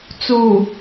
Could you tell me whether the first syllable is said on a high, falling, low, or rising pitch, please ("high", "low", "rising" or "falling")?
low